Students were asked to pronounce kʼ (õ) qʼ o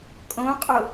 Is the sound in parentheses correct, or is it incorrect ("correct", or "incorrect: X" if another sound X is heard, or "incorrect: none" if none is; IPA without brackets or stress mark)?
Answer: correct